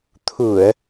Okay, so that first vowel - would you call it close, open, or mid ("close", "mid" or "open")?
close